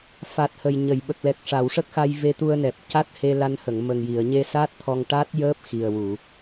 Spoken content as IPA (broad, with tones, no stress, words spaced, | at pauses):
fa˨˩t̚ hə˨˩jɲə˨˩˨j ɓə˨˩k̚lɛ˨˩k̚ ʂa˨˩˨wʂə˦˥k̚xa˧j ve˧t̪u˧ə̯nɛ˨˩p̚ ca˦˥t̚he˧la˧nhə˨˩˨ŋ mə˨˩ŋji˨˩˨ə̯ɲe˧ sa˦˥t̚ t̪ʰɔ˧ŋ ʈa˦˥t̚jəː˦˥p̚ xi˨˩ə̯wu˨˩˨